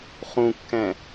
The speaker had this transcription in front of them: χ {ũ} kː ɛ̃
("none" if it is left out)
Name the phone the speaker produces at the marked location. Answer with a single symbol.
ũ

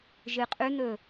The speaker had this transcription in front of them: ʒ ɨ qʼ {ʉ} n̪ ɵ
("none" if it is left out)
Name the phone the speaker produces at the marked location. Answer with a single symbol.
ʉ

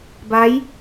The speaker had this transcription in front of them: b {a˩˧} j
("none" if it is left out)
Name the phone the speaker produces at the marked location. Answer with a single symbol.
a˧˥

